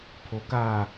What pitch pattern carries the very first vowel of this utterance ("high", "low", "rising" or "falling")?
low